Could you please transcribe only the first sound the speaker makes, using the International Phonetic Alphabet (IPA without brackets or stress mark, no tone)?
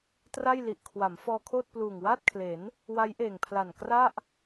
t